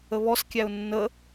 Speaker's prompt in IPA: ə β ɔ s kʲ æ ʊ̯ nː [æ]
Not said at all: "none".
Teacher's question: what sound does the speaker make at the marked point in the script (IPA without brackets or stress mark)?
ə